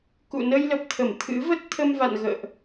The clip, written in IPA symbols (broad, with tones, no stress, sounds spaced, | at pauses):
k ṵ˧˨ n ə˧ j l ə˨˩ p̚ t̪ʰ ə˧˩ m t̪ʰ ɨ̰˧˥ v ə˦˥ t̚ t̪ʰ ə˧ m v a̰˧˨ n ɣ ə̰ː˧˨ ʔ